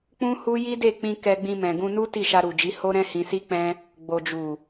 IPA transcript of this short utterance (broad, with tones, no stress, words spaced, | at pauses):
k͡pũ˦hu˦ ji˦de˦˨k͡pĩ˧ kɛ˧ɡ͡bĩ˧ mɛ̃˨ɡũ˧nu˦ ti˦˨ʃa˧ɾu˨d͡ʒi˨˦ ho˦ɾɛ̃˦hĩ˧si˦ k͡pɛ̃˦ | ɡ͡bo˨d͡ʒu˨